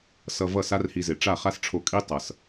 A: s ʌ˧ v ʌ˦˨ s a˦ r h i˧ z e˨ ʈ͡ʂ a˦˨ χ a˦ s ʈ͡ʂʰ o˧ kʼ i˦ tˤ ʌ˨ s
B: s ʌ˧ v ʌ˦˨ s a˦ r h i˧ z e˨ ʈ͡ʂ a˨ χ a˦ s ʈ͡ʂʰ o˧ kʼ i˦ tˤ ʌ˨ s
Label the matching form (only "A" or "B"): A